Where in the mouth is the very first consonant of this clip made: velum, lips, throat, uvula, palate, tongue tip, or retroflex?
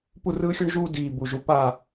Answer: lips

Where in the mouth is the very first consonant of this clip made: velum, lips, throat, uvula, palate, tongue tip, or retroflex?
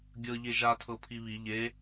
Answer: velum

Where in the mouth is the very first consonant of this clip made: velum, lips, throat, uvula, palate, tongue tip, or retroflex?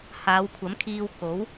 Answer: throat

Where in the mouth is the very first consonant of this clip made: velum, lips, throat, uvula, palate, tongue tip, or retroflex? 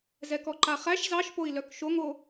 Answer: tongue tip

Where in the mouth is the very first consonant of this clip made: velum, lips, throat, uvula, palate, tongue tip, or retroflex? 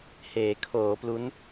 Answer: throat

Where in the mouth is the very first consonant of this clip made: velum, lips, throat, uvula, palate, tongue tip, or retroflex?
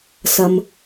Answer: tongue tip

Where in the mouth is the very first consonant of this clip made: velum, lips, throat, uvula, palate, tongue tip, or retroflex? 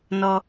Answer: tongue tip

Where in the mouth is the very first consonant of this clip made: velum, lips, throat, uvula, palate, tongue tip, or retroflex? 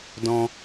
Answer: tongue tip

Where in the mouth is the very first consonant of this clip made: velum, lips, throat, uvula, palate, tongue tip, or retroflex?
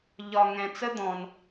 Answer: palate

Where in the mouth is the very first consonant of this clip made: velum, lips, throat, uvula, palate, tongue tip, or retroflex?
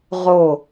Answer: uvula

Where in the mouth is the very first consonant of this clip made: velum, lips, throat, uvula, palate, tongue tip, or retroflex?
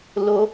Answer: tongue tip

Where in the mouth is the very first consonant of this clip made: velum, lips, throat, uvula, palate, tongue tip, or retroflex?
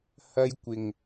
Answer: throat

